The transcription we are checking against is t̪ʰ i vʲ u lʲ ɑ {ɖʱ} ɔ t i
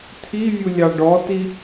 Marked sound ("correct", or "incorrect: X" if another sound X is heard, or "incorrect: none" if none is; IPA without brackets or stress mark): incorrect: ɖ